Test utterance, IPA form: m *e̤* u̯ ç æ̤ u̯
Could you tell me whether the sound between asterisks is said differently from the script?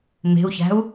no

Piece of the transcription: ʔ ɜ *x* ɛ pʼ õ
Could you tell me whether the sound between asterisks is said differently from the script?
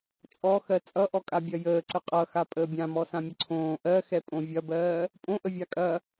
no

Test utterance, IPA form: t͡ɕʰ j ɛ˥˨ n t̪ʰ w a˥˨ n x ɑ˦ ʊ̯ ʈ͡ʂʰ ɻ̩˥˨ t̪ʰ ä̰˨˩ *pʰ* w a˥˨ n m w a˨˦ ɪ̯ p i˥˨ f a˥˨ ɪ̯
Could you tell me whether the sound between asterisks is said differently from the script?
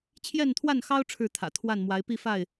yes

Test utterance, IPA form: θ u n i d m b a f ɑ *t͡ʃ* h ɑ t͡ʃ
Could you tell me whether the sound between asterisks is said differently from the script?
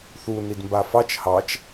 no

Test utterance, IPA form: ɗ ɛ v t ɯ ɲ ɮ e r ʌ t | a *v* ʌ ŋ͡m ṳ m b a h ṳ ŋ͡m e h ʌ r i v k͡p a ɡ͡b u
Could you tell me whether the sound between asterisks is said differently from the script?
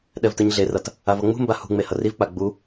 no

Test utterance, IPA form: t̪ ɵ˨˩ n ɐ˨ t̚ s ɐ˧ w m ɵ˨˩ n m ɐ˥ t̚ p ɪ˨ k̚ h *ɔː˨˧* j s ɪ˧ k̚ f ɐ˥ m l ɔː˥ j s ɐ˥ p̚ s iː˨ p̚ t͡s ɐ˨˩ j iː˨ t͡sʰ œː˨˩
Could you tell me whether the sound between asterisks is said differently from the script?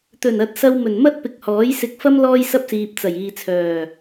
yes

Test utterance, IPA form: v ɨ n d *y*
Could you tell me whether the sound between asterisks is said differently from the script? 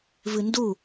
yes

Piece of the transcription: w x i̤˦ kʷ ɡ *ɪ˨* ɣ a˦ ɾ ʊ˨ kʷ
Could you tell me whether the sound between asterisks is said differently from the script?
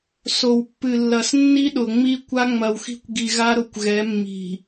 yes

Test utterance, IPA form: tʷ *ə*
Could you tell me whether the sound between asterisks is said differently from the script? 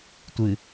yes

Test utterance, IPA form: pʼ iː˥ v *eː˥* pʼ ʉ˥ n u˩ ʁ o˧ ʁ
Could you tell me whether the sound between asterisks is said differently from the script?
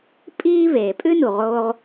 yes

